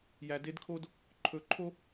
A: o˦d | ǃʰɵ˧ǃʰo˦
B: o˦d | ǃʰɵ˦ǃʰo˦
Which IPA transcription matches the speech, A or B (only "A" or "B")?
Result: A